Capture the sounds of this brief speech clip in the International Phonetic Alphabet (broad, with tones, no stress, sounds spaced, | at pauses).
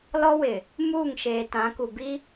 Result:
l ɔ˦ w ɪ˨ | m uː˦˨ ŋ ʃ eː˨ t ã˨˦ k u˨ b i˦